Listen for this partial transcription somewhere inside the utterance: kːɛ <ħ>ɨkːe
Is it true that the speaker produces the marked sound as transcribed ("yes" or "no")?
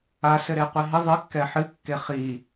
yes